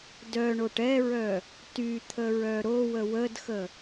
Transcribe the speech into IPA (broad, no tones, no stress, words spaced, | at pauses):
dœɳoʈ ɛɹœ | tyt̪ʰəɹœ ɾowə wədxə